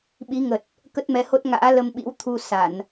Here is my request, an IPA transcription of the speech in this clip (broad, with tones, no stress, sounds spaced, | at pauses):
ɓ i˨˦ ŋ ə˨˩ t̚ | k ə˦˥ t̚ m ɛ˨˦ h o˦˥ t̚ ŋ a̰ː˧˥ l ə˧ m ɓ ḭ˧˥ w t̪ʰ u˧ s a˧˩˨ n